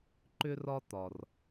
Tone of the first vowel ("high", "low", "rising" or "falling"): high